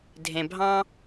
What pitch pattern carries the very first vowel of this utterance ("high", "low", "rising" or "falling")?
low